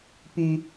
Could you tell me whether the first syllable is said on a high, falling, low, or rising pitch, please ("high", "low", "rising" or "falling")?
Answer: low